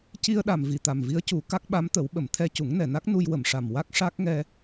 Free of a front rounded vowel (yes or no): yes